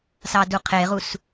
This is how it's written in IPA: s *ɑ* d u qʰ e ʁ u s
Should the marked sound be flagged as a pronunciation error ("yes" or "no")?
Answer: no